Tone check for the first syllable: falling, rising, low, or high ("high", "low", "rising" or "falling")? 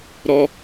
high